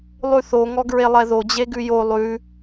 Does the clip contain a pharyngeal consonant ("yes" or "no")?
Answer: no